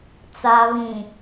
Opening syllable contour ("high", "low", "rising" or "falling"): low